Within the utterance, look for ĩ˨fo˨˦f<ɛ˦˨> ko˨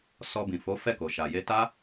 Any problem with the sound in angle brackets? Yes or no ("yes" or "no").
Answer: no